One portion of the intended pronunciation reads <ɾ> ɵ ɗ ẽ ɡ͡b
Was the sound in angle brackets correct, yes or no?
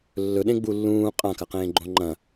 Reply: no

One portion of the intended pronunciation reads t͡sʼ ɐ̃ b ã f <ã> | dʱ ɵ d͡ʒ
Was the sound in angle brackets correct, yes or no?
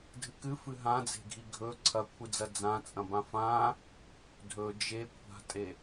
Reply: yes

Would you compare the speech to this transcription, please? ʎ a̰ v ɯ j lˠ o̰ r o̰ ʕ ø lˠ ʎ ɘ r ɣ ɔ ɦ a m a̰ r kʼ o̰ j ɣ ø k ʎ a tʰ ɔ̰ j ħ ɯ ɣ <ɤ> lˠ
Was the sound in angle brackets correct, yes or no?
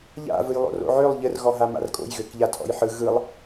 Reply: no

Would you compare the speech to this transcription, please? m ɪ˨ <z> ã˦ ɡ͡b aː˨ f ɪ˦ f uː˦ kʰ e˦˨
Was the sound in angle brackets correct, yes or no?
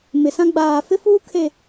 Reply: no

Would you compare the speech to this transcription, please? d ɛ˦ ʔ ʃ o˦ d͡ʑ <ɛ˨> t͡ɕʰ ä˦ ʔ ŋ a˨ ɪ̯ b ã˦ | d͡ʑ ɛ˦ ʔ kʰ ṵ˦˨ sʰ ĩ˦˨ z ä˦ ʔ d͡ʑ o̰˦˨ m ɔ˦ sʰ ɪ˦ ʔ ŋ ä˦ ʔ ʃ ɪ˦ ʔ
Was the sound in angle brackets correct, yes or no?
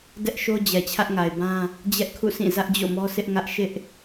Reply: yes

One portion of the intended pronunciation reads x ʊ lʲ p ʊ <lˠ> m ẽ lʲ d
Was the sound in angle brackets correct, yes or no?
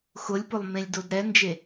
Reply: yes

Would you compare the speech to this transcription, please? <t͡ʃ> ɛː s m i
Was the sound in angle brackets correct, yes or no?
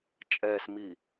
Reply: no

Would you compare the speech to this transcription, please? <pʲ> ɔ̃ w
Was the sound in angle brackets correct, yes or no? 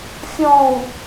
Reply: no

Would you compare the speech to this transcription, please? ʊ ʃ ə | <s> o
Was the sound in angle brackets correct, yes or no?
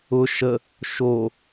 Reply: no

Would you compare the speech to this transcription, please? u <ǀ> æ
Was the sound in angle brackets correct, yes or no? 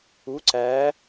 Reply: yes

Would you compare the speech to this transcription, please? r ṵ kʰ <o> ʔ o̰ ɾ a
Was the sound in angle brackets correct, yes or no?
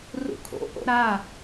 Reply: no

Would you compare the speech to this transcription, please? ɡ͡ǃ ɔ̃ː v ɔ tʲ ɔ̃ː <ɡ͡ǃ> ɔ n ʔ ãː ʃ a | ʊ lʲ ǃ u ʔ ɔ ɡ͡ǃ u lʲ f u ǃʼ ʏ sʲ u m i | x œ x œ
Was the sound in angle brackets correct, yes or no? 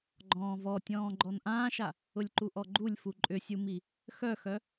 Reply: yes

